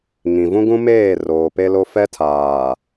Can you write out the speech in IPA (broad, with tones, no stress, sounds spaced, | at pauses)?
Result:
ŋ ĩ˨ v ũ˦ ɡ ũ˦ m eː˦˨ r oː˨ p e˦ l o˦ f ɛ˦ tʰ aː˨